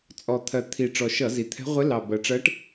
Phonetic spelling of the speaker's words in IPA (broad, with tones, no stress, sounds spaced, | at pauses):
t͡sʼ ɔ˨˩ t̪ʰ ɜ˨˩ t̪ʰ i˨˩ ʈ͡ʂ ɔ˨˩ ʃ ʌ˧˩˧ z i˨˩ t̪ʰ ɛ̤˧˥ ʁʷ ɪ˧˥ l ɑ˨˩ b ɜ˨˩ ʈ͡ʂ ɜ˧˥ ʈ